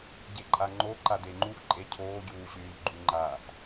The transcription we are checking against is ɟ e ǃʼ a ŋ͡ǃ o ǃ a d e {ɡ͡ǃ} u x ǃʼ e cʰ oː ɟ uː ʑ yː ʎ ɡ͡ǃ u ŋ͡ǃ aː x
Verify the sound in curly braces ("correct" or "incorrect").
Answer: incorrect